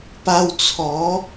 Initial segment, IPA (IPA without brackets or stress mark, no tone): p